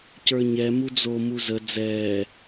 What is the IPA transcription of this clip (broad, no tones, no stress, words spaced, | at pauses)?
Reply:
cə˞ɲɛ mud͡zo muzə d͡zɛː